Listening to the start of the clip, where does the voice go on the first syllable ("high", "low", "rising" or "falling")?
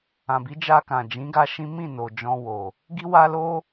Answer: low